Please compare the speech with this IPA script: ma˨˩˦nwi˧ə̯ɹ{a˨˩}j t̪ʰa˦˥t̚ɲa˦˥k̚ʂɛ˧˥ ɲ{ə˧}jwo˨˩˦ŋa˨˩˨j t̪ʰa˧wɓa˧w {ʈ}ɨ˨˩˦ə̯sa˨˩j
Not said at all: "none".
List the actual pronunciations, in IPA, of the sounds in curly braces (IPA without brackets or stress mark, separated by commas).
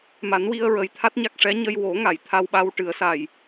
ə˨˩, ə˧, ʈ